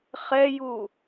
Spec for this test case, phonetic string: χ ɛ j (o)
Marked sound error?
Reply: yes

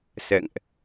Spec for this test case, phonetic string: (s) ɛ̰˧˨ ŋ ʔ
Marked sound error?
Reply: no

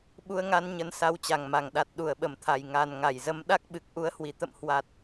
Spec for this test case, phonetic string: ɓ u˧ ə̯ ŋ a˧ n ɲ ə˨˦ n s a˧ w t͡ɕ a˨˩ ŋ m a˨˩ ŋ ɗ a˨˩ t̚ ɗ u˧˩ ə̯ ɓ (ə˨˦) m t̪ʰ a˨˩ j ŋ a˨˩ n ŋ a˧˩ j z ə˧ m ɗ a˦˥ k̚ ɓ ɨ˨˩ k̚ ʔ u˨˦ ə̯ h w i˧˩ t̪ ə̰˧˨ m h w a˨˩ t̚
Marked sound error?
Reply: yes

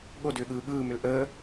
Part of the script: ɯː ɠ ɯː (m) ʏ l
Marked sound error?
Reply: no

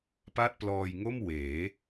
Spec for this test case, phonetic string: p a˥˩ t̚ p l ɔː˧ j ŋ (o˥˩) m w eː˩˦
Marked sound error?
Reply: no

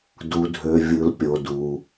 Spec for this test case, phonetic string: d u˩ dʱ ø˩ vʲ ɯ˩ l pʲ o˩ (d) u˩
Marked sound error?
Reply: no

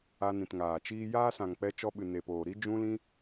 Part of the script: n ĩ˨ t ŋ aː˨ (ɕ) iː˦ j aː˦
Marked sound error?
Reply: yes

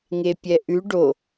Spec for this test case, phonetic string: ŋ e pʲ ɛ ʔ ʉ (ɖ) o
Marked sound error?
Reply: no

